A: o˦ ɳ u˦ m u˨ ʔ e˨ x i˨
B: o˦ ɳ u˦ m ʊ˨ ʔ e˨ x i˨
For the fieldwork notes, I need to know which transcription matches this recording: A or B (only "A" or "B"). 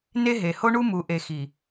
A